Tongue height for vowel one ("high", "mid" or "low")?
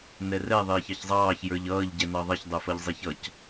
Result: mid